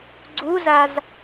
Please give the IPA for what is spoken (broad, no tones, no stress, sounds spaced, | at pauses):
ɡ͡ǀ u z a z